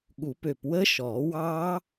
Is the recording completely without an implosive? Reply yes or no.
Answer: no